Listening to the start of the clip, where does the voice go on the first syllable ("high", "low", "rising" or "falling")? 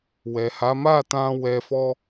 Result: low